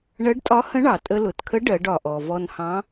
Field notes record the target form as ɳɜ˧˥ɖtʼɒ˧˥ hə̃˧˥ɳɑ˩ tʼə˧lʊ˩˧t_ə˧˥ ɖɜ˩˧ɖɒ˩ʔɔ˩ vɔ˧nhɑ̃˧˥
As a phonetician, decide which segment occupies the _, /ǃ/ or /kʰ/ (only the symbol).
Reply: kʰ